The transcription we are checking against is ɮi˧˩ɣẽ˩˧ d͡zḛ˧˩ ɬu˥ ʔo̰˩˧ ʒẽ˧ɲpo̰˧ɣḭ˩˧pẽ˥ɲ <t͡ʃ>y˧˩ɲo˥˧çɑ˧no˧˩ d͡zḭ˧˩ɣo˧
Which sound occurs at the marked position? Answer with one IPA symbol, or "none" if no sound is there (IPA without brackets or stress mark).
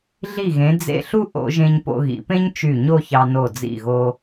t͡ʃ